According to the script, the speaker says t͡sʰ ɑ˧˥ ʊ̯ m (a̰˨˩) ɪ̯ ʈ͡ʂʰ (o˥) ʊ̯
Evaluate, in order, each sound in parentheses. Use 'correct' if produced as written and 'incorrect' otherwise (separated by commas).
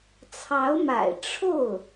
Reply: correct, incorrect